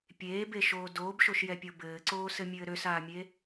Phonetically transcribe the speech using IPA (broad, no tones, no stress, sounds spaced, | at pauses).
pʲ eː b e ʃ oː d oː b ʃ o ʃ j ɛ pʲ o b ɘː ǀ oː s ɘ mʲ ɘː ɾ ø s aː mʲ e